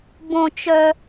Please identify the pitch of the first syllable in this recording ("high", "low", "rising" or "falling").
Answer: high